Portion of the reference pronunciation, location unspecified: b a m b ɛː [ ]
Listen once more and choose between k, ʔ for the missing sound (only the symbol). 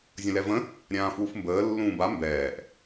ʔ